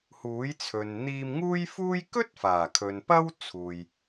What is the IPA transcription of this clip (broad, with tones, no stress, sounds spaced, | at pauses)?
h uː˨˥ j t͡sʰ ɵ˨ n n̪ iː˧ m ŋ uː˥ j f uː˥ j k ɵ˥ t̚ f aː˨˩ kʰ ɵ˨ n p ɐ˥ w t͡sʰ uː˨ j